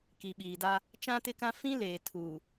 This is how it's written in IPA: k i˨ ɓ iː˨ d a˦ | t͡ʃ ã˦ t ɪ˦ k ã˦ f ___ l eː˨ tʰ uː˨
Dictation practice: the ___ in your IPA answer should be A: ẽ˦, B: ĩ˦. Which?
B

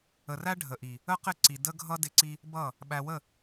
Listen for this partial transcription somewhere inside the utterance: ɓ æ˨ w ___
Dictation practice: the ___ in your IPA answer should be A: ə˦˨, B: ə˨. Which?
A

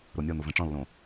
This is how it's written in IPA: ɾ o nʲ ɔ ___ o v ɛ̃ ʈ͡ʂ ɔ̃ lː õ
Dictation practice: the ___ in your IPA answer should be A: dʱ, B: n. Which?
B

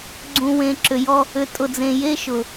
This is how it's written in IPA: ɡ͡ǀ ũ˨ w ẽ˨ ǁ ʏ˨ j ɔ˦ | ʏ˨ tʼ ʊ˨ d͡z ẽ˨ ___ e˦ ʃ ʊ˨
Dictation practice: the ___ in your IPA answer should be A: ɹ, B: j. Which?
B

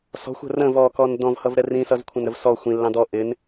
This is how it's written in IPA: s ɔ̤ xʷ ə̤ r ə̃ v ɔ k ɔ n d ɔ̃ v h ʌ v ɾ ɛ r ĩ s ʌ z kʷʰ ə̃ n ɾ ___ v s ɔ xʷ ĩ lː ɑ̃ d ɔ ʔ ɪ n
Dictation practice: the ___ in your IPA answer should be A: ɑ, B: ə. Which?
B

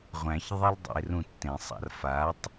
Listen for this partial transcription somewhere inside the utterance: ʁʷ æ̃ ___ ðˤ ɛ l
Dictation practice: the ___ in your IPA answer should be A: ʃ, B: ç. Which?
B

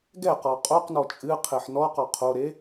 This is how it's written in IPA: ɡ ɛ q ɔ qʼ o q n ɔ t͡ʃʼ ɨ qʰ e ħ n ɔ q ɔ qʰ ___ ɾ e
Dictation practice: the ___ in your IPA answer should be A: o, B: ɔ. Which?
A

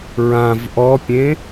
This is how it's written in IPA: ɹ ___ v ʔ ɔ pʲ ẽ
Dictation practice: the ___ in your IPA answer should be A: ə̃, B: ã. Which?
B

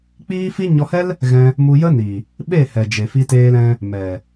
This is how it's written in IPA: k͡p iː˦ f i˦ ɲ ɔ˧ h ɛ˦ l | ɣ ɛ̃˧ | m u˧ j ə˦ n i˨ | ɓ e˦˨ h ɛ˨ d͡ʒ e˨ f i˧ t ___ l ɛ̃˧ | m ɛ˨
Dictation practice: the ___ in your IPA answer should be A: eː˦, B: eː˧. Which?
B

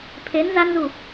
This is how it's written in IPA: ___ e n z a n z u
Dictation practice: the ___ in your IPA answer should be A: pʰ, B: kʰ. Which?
A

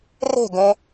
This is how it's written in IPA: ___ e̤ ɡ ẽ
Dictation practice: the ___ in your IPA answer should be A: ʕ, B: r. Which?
B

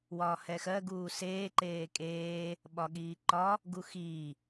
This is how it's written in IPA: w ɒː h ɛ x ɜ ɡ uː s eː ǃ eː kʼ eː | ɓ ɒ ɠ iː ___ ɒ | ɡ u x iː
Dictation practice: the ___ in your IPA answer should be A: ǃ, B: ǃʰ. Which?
A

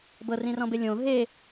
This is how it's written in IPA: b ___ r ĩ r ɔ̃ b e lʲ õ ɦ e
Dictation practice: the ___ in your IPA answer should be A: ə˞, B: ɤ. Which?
B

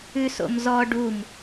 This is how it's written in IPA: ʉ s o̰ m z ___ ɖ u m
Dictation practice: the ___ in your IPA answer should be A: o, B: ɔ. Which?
B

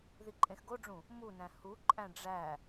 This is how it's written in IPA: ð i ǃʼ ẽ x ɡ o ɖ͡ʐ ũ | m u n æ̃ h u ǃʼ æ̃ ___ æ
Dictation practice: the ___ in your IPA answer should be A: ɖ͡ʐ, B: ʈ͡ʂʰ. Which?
A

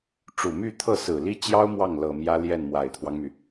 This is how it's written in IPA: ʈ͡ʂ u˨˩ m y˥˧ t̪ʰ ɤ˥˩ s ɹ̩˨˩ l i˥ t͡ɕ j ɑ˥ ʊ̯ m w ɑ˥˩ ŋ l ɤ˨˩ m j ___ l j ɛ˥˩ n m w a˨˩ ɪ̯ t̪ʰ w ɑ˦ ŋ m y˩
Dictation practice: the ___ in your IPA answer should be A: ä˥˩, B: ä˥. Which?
B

